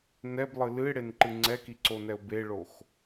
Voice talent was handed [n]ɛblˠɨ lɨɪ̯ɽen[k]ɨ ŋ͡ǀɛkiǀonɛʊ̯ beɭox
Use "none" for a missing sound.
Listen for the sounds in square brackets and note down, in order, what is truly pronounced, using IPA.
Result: n, ǃ

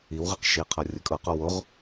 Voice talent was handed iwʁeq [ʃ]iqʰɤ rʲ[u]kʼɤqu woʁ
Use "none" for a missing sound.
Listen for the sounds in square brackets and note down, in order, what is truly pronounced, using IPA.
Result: ʃ, ɯ

